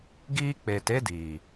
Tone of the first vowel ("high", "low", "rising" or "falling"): high